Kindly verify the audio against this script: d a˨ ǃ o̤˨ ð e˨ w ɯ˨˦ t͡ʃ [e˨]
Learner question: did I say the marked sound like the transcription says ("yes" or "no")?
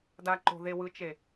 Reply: yes